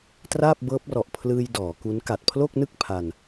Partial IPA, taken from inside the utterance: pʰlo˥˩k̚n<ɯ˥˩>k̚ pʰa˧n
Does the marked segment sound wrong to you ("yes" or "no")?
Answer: no